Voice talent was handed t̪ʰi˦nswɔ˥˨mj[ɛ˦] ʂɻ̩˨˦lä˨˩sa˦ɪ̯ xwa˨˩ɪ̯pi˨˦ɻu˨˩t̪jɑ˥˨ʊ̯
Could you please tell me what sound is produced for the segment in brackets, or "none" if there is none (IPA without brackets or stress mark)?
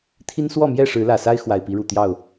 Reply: ɛ˥˨